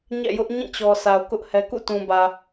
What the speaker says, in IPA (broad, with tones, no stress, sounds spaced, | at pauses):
ɲ ɛ̰˦˨ j ʊ˦ ʔ ɲ ĩ˦˨ t͡ɕ ɔ˨ s a˨ ʊ̯ k ʊ˦ ʔ h ɛ˦ k ṵ˦˨ t ũ˨ b ä˨